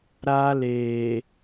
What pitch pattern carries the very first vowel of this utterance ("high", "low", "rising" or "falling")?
high